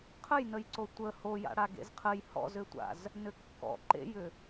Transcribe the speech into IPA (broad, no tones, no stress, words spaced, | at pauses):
qʰəjnəjǀo tʷə hoja̰ɽa ɡḛzqʰəj hɔ̰zʏtʷa̰z | nʏkːɔ̰ ǃḛjʏ